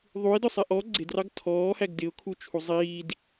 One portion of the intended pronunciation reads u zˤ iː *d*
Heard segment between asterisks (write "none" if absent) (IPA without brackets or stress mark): d